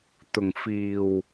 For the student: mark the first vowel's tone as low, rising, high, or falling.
low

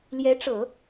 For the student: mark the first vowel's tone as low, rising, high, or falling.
rising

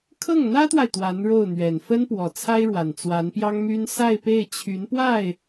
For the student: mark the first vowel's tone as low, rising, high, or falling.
falling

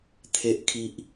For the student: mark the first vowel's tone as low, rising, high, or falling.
low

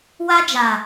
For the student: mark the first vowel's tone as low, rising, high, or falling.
high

